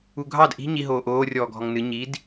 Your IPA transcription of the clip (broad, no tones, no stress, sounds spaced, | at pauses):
u ɡʱ ɑ d ʔ i̤ ɲ i ɦ oː ʔ oː rʲ ɔː ɡʱ ɔ ŋ n ɨ ɲ i d